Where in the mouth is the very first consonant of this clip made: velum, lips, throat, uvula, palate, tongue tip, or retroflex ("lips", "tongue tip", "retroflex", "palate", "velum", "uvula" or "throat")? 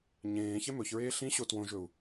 palate